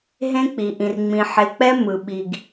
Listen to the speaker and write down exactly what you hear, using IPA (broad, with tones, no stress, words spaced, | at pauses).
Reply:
ɦẽ˦k͡pi˨ ʔĩ˨rŋ͡mĩ˨ ħe˨k͡pɛ˦ mɯ˨ɓi˨ɡ